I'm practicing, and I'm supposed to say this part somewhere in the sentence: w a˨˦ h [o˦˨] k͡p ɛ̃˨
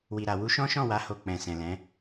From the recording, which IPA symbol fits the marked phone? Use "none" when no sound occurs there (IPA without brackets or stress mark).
o˦˨